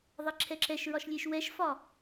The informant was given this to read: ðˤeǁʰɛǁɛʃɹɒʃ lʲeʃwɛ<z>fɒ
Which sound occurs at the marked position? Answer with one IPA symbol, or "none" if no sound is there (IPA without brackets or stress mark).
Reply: ʃ